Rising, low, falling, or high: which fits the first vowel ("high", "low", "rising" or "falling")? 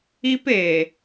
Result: high